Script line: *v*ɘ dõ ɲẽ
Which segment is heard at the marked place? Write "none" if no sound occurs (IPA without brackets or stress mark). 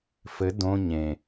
f